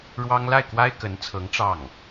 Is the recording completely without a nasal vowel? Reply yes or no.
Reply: yes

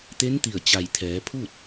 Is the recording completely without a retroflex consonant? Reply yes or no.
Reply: yes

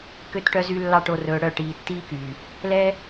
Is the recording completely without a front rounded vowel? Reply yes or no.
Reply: no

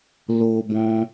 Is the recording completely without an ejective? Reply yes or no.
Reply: yes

